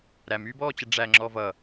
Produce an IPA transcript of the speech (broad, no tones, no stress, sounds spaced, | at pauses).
ɾ æ m yː b ɔː t͡ɕ ə ɖ͡ʐ æ ŋ͡ǁ ɔ v ʌ